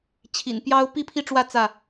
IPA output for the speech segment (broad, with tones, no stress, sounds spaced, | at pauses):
t͡ɕʰ ḭ˨˩ n p j ɑ˦ ʊ̯ p i˥˨ pʰ i˦ ʈ͡ʂ w ä˥˨ t͡s ä˥˨